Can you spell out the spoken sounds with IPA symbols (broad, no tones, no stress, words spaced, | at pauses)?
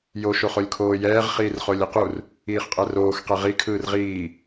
joʃ oχolʲkʰoːjɛːʁ χiːrχolʲiqur | iːχqʼɛroːx qɛʁi kʰɯːrʁiː